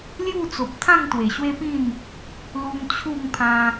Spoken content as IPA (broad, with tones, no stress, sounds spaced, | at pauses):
l j u˥˧ t͡s o˨ p̚ t̪ʰ ã˥˧ ŋ t̪ w e˨˩ ɕ w e˦ p ĩ˥˧ n | l u˧ m t͡ɕʰ u˥˧ ŋ pʰ ã˧